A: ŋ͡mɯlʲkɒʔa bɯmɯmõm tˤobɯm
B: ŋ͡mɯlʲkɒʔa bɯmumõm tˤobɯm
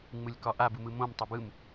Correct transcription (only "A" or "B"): A